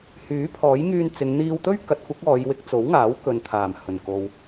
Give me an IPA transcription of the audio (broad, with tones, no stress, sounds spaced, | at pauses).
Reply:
h yː˨˥ pʰ ɔː˨˥ j ŋ yː˧ n t͡s ɪ˨˧ ŋ n̪ iː˧ w t̪ ɵ˥ ɥ k ɐ˨˥ t̚ kʷ ɐ˨˥ k̚ ɔː˨˧ j w ɪ˧ k̚ t͡s o˨˥ w ŋ aː˨˥ w k ɵ˨ n t̪ʰ aː˨˩ m h ɵ˨˩ n k o˨ w